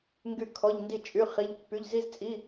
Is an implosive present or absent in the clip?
absent